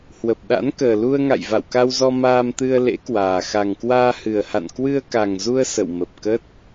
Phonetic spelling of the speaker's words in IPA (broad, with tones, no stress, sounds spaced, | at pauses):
h w ə˨˩ p̚ ɗ a̰˧˥ n k əː˨˩ l u˧ ə̯ ŋ a̰˧˨ j v a̰˧˨ w k a˧ w z ɔ˧ m aː˧ m t̪ ɨ˧ ə̯ l ḛ˧˥ k w aː˨˩ x a˨˩ ŋ k w aː˧ h ɨ˨˩ ə̯ h a̰˧˨ n k w ɨ˧ ə̯ k a˨˩ ŋ z u˧ ə̯ s ə̰˧˨ w m ə˨˩ p̚ k ə˦˥ t̚